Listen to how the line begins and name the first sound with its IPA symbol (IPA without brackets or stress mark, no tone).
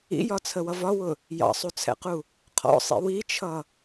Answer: ḭ